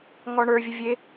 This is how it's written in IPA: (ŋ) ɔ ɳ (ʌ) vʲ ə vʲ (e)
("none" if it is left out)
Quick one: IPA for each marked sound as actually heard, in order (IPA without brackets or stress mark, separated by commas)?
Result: ŋ, ə˞, e